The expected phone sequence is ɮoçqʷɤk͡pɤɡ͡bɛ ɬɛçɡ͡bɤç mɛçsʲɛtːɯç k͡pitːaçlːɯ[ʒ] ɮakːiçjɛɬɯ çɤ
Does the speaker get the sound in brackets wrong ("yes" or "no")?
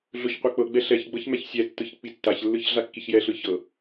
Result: yes